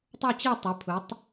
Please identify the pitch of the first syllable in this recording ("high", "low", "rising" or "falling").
falling